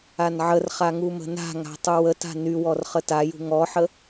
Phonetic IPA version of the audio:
a n ʕ ə r χ a ŋ u m ə̤ n a̤ ŋ a̤ tˤ u w ə t a̤ n y w ɔ r χ ə t a j ṳ ŋ ɔ ħ ə

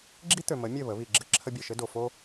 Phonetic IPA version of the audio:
ɡ͡ǁ i˦ t̪ ø˨ m ə˨˦ mʲ ɘ˦˨ β ə˨˦ β i˨ ɡ͡ǁ ɘ˦ ǁʰ ə˦ bʲ ɘ˨ ʃ ɘ˦ d o˨ f o˦

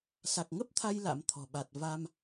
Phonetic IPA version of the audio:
s a˨˩ k̚ ŋ ə˦˥ p̚ t̪ʰ a˧ j l a̰˧˥ m t̪ʰ ɔ̤˨˩ ɓ a˨˩ t̚ v a˧ m

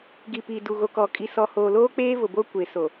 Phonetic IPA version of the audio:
ɡ i˨ p iː˨ d u˨ ɣ o˨ k ɔ˨ kʼ i˨ s ɔ˨ h oː˨ l oː˦ k͡p eː˦ v ʊ˨ b o˦ kʷ e˨ s o˨

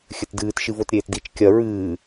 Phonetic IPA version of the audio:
xʲ ɘ t d ɨː t ʃ ɨ v o t ɾʲ eː t d i t͡ʃ kʲ ɐ ɹ ɨː

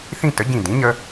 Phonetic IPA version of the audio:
θ ĩ˥˧ t ə˩˥ ɟ ĩ˧˩ d ĩ˩˥ ɲ ə˧

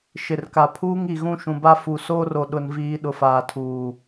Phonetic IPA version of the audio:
ʃ ɪ˨ r k a˨ pʰ uː˦ ŋ i˨ ɣ ũ˦ ʃ ũ˨ b a˦ f u˨ s oː˦ r o˨ ɗ ʊ˨ n v iː˨ ɗ ʊ˨ f aː˨ tʰ uː˨

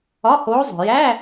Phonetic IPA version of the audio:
ɒ˧˥˧ h oː˧˥ zˤ o̤˨ j æ˧˥˧

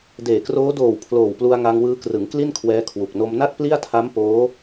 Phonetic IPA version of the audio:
d eː˨˩ k r oː˦˥ d oː˨˩ w pʰ l oː˨˩ w p l u˧ a̯ ŋ a˧ ŋ w ɯː˧ k r ɯ˩˦ ŋ k l i˥˩ n kʰ w ɛː˧ kʰ w u˨˩ k̚ n o˧ m n a˥˩ t̚ p l i˥˩ a̯ tʰ a˦˥ m p oː˦˥

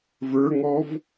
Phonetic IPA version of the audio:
v ə˞ ŋ ɔ v

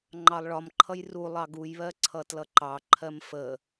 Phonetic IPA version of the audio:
ŋ͡ǃ ɑ lˠ ɭ ɒ m ǃʰ ʌ j r u lˠ ɑ ɡ u j β ɜ ǀʰ ʌ t l ʌ ǃ ɑ ǃʰ ɜ m f ə

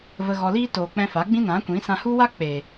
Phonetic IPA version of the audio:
v ə˧ ɣ ɔ˧ l iː˦ t oː˨ k͡p ɛ̃˧ f a˨˦ ɡ͡b ĩ˦ n ã˨˦ kʷ ĩ˨˦ s ã˧ h u˦ w a˦ k͡p e˨

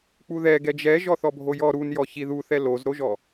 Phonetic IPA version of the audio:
k͡p u ð ɛ ɡ ɛ d͡ʒ ɛ ʒ ɔ θ ɔ bʱ o j ɔ ɾ u n j ɔ ç i ð u θ ɛ l o z ɾ o ʒ ɔ

